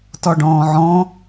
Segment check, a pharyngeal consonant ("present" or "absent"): present